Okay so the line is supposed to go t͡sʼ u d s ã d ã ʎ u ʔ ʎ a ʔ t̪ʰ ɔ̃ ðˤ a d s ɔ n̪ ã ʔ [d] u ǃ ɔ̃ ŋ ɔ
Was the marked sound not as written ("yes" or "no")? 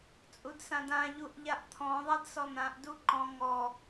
no